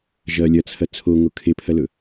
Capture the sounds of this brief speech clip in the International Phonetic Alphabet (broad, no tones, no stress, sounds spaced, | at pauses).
ʒ ɐ lʲ ɐ t͡sʰ ɐ t͡sʰ o ŋ o kʰ e pʰ ɐ l ɵ